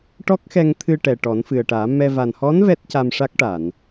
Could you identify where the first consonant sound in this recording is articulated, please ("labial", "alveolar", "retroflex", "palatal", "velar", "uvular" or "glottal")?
retroflex